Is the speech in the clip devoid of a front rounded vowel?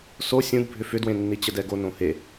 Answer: no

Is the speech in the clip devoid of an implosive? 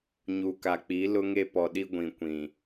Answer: no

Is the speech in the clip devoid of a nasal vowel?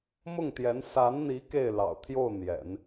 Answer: yes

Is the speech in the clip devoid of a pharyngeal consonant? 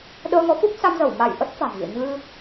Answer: yes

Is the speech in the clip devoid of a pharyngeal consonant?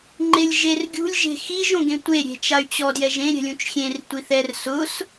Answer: yes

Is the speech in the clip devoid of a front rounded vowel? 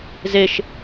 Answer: yes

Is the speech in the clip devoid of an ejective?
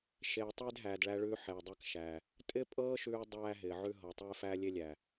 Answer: no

